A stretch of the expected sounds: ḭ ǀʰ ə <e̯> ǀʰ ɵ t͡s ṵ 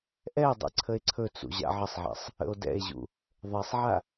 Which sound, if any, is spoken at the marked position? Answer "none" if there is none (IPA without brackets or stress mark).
e̯